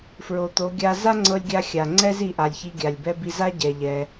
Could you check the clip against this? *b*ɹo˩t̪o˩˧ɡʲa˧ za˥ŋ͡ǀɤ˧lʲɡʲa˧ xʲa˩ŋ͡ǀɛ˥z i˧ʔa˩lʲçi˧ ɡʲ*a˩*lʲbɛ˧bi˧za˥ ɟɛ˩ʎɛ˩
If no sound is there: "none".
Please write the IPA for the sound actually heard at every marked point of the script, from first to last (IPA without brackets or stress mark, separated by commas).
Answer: f, a˩